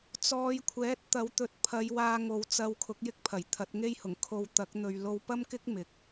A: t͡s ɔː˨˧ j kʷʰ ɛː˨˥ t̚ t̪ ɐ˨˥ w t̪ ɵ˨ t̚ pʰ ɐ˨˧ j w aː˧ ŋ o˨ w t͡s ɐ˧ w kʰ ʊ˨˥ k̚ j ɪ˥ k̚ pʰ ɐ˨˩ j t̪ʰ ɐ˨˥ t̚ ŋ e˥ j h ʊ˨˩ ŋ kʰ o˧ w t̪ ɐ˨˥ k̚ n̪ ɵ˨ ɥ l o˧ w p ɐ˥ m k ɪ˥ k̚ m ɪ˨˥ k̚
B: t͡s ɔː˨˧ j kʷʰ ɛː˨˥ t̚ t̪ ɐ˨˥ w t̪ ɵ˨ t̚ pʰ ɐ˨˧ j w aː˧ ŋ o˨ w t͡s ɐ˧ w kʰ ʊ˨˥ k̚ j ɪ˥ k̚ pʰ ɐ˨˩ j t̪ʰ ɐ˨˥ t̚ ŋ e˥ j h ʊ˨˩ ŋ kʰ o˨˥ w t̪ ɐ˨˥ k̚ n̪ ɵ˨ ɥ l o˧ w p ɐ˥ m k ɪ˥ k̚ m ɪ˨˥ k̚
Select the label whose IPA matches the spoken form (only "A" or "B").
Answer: A